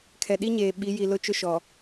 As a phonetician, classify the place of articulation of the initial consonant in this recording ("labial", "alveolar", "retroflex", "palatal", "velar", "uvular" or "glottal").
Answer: velar